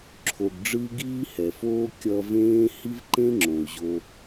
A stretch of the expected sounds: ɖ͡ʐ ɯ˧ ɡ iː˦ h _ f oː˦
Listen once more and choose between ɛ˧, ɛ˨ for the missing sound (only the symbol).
ɛ˨